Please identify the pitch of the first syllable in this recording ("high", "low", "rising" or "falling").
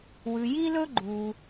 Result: low